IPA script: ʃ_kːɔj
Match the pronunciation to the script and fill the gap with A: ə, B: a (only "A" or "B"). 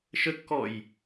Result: A